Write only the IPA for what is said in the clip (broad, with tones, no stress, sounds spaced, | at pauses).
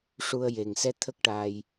ʂ u˧ ə̯ j e˨˩ ŋ s ɛ˧ t̪ʰ ə˦˥ k̚ ʈ aː˧ j